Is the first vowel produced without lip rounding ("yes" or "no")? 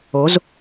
no